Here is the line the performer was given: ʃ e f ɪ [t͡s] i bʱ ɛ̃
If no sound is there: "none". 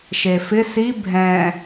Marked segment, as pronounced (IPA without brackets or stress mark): s